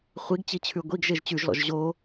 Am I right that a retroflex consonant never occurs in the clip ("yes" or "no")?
yes